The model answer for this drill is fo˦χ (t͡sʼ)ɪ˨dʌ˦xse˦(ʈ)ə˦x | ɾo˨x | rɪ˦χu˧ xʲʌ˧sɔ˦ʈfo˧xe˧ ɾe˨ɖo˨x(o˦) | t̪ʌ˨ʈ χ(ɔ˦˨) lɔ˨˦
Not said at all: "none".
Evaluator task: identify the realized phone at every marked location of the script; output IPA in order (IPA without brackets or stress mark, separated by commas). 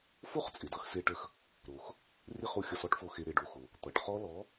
t͡sʼ, ʈ, o˨, ɔ˦